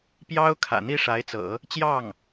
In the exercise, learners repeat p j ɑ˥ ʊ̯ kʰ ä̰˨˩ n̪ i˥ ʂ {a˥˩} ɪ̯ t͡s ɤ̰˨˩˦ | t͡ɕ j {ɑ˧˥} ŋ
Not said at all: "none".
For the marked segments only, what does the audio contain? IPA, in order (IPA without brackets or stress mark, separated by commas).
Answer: a˧˥, ɑ˥˩